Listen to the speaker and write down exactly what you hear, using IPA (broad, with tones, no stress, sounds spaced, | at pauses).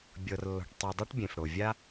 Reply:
bʲ ɤ˩ r lː ɔ̤˩ ʈ tˤ u˩ dˤ o˥ ʈ bʲ ẽ˩ f ɽ o˩ vʲ a˥